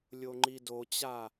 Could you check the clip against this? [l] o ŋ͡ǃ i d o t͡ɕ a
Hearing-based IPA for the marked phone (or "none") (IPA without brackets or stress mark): lʲ